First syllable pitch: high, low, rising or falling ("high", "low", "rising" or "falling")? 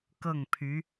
falling